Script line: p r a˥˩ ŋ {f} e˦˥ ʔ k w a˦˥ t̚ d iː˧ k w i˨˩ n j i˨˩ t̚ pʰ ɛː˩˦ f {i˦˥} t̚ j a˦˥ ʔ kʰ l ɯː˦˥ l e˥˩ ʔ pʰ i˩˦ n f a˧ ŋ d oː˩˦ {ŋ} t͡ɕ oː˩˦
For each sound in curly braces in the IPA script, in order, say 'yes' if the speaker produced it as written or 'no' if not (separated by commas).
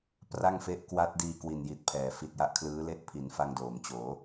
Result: yes, no, no